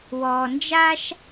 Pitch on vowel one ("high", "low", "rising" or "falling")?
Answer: low